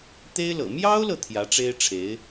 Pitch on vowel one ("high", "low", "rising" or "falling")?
high